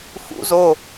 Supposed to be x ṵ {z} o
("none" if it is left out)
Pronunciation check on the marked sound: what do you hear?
z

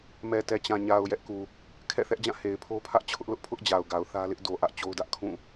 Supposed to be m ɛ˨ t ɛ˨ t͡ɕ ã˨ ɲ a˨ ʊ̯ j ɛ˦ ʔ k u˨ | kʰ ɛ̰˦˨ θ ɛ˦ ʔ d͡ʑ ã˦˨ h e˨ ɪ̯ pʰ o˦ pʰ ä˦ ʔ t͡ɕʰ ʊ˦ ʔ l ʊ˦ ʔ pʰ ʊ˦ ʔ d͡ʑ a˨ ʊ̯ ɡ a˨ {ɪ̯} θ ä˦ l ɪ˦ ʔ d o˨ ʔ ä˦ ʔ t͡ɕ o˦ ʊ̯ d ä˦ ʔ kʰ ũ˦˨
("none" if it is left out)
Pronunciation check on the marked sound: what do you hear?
ʊ̯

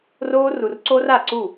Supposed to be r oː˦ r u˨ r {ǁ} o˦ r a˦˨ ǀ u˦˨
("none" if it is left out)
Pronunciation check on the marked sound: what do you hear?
ǀ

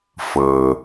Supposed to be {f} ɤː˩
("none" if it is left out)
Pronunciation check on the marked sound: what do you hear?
f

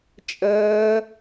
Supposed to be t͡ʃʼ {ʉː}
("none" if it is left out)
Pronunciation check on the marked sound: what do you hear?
əː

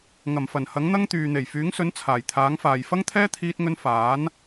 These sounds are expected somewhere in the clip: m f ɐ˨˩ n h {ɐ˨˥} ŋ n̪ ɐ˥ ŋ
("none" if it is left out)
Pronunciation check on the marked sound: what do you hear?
ɐ˨˥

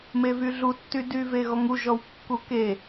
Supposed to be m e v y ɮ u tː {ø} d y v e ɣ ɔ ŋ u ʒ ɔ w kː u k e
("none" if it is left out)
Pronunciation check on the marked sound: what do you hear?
y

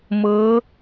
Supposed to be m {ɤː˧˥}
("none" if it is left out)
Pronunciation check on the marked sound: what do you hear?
ɤː˧˥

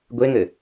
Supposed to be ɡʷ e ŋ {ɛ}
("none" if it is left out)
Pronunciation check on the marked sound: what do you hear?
ɘ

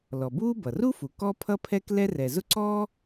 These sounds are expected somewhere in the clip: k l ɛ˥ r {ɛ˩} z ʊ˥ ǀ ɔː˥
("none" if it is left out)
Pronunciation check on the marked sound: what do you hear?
ɛ˩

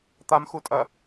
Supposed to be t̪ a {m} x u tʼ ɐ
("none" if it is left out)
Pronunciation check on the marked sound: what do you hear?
m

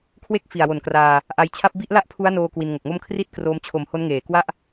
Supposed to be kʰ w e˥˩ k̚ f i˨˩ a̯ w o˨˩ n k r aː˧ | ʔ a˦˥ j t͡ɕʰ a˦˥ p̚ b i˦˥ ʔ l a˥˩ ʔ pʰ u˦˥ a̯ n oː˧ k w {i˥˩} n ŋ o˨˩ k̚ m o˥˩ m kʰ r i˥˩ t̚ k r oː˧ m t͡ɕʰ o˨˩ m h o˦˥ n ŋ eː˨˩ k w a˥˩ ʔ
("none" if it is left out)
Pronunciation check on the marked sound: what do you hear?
i˧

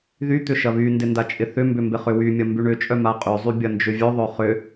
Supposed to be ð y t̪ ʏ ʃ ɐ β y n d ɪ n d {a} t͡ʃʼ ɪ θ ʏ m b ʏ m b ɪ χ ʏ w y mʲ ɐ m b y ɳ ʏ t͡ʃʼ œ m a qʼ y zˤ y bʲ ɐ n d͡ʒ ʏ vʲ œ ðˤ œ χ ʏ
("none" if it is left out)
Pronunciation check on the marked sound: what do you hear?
a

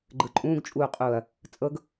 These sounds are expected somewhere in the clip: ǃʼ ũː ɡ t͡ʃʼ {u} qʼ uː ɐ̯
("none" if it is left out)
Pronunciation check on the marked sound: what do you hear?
uː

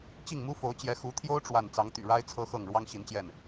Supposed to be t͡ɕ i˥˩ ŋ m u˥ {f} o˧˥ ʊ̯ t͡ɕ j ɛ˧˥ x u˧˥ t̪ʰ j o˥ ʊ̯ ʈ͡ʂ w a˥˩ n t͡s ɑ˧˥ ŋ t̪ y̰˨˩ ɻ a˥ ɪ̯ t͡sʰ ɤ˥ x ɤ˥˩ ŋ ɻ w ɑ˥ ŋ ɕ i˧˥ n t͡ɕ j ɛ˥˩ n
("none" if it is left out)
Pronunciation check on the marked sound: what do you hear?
f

